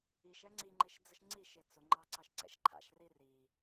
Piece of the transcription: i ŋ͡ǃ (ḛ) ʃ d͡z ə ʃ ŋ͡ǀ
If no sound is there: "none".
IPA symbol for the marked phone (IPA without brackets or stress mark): e